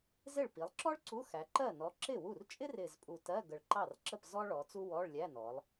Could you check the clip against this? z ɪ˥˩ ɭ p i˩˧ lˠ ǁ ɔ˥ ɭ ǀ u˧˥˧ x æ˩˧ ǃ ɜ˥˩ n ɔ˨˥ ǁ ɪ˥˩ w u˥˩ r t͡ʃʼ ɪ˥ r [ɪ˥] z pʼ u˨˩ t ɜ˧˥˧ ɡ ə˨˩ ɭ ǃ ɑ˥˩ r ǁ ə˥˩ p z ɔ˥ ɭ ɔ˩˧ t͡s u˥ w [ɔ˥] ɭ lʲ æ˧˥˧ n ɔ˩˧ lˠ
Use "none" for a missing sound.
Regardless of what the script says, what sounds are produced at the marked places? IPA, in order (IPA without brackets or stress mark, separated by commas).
ɪ˨˩, ɔ˧˥˧